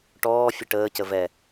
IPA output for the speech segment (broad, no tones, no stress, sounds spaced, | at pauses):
ʈ ɔː fʲ ə ʈ əː c ə v ɛ